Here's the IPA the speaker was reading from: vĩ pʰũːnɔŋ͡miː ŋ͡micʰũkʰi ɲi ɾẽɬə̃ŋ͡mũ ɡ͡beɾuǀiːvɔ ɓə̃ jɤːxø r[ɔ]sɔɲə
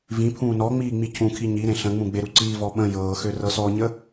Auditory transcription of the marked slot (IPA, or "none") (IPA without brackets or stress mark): ɤ